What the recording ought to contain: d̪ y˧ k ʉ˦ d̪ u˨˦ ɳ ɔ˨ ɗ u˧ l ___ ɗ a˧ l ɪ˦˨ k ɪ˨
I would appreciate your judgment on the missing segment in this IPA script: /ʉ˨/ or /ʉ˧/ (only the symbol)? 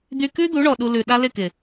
ʉ˨